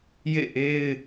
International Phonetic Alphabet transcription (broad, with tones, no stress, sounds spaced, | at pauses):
j ḛ˦˨ ʔ e˦ ɪ̯